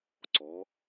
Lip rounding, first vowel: rounded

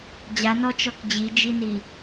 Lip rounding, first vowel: unrounded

